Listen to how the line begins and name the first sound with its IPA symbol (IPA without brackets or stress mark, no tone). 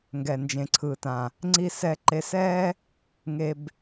ŋ